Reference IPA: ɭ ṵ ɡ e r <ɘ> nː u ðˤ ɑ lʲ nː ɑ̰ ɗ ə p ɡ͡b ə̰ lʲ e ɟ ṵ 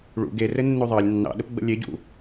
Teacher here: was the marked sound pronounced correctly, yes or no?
yes